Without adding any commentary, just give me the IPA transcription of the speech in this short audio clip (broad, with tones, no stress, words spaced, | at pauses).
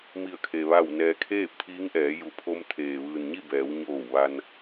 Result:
mi˧˩ə̯kʰe˩ ʋa˧˩w nɛː˩kʰeː˥˨p̚ t̪ʰiː˧˥ŋʔɛː˩˧ ju˩pʰo˧m t̪ʰeː˩ʋɯː˩n ɲi˥˨bɛː˩˧wɲoː˧˩w ʋa˧n